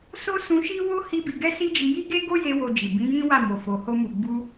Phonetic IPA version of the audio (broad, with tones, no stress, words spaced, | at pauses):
so˦sũ˧ʃi˦wo˦ hi˦ bi˧ ɡɛ˦si˦d͡ʒi˧ ji˦ɡe˦ɡo˦ je˦wo˧d͡ʒi˨ bĩ˨˦jĩ˦ wa˦˨mo˨fo˨ ho˧mu˨ɡ͡bu˧